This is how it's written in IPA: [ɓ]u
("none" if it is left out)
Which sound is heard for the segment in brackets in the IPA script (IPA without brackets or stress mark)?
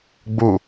ɡ͡b